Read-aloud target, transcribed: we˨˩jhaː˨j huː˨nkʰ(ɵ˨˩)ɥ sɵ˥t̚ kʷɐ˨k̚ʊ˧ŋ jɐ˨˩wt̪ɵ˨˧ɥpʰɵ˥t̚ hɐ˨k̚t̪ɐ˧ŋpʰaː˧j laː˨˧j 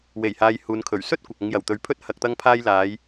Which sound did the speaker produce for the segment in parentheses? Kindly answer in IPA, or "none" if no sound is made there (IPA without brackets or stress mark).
ɵ˨˩